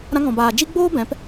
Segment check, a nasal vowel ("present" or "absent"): present